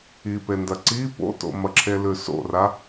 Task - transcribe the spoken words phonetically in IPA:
i p e n d ɐ ǀ i p o̰ t o̰ m ɐ ǁʰ e l ʉ s o̰ r a

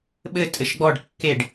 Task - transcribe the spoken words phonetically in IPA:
ɓ ɘ tʼ ɘ ʃ ɡ͡b ɔ ɖ kː e ɖ

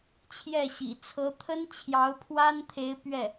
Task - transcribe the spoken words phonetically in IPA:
t͡ɕʰ j ɛ˥˩ ɕ ḭ˨˩ t͡sʰ ɤ˧˥ t̪ʰ ə˥ n t͡ɕʰ j ɑ˧˥ ʊ̯ pʰ w a˥ n t̪ʰ e˧˥ ɪ̯ p ɥ ɛ˥˩

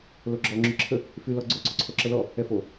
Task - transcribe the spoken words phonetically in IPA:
l o ɡ͡ǁ ɔ ŋ͡ǁ y ǁʰ ə | f y l ɔ ɡ͡ǀ o ǀ o ǀʰ o ǁ ə l ɔ | ɛ f o

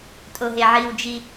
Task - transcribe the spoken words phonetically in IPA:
tʼ o ɦ e ʕ i w d͡ʒ i

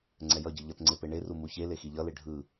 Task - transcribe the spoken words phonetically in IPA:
ŋ͡ǀ ɛ j ʌ ɟ ɯ ʎ ʌ t ŋ͡ǀ e p e ɳ e r u m u ç e l e x i ʎ ʌ l e ɖʱ ɯ

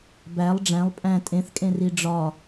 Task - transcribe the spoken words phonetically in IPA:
b æ lˠ ɖ͡ʐ æ̃ lˠ pʼ æ̃ tʼ ẽ θ kʼ ẽ r i ɖ͡ʐ ɒ

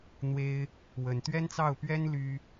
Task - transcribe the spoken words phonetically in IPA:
n̪ w e˥ ɪ̯ | w ə˨˩ n t̪ ɥ ɛ˥ n t͡s ɑ˥˩ ʊ̯ p ɥ ɛ˥ n l y˥

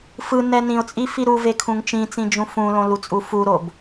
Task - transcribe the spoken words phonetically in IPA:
f ɯ n ɛ n ĩ ʊ̯ t͡sʼ i f i ɾ u v e kʰ ũ ŋ t͡ʃ ĩ t͡s ĩ d͡ʒ ũ f ũ l õ l u t͡sʼ u f u ɾ o b

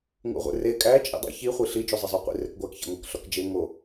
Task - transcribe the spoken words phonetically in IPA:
ŋ ṵ ʁʷ ḛ r e kʼ æ t͡ʃʼ ḭ dˤ ḛ ç i χʷ i ɬ i d͡ʒ o zˤ e zˤ o qʷ ḭ r e k ɡʷ æ k ç ḛ ŋʷ æ k ɬ ɒ k d͡ʒ e ŋ o

